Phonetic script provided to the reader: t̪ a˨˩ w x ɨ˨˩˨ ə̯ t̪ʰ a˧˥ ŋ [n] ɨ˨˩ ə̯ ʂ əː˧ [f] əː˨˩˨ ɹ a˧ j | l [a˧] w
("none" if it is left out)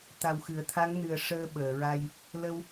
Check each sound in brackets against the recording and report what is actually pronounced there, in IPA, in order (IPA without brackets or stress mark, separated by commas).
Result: n, ɓ, ə˧